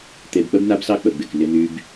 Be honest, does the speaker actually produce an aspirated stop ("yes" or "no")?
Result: no